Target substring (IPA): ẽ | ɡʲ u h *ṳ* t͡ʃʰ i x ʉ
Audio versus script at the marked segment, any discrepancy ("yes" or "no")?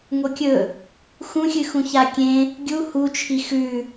yes